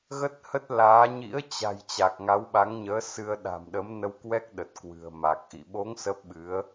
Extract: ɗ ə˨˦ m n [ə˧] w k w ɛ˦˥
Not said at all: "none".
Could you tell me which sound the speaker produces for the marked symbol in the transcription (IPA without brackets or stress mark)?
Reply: ə˧